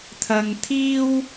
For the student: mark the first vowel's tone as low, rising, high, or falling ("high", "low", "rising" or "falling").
low